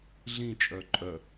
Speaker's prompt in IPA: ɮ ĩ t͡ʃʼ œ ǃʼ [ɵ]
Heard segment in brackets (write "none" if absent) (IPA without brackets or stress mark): œ